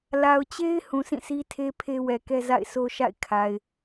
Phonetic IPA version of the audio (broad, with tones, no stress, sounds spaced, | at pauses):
l a˨ ʊ̯ t͡ɕ e˦ ɪ̯ h ũ˨ s ĩ˦˨ s i˦ tʰ e˦ pʰ e˦ w ɛ˨ k ɛ˦ z a̰˦˨ ɪ̯ sʰ o˦ ʃ a̰˦˨ ɪ̯ kʰ a˨ ɪ̯